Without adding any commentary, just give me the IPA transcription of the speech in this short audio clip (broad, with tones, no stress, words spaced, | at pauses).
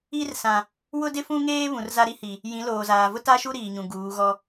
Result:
i˦r sã˨ | wʊ˦dɪ˦fũ˦ŋeː˦ βũ˨rza˦ɾi˦hi˨ | jĩ˨˦loː˨zaː˨ vʊ˦ta˦ʃu˦ ɾiː˨ɲũ˨ɡuː˨˦ɣɔ˦